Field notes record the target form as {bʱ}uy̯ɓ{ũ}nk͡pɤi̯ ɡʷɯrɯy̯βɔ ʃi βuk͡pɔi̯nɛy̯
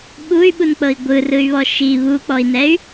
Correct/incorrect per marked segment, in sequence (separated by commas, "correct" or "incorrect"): incorrect, incorrect